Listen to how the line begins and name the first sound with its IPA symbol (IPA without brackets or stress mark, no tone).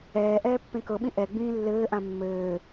ɛː